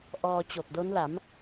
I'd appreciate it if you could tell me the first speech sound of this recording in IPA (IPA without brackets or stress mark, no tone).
ʔ